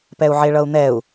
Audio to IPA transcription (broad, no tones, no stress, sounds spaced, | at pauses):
p ɛ u̯ ʕ e ɭ ʌ u̯ n̪ ɛ u̯